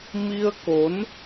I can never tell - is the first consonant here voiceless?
no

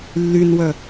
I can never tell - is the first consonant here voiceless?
no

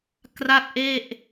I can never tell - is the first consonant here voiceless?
yes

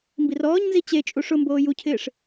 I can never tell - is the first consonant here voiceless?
no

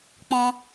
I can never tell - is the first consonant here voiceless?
yes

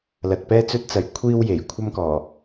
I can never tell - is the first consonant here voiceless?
no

